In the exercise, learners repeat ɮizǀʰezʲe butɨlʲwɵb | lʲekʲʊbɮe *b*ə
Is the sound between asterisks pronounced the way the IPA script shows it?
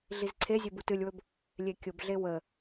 no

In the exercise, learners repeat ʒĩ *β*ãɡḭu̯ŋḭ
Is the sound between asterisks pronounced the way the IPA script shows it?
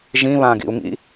yes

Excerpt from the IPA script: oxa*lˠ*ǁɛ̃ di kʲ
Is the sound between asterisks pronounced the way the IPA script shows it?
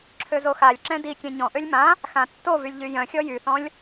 no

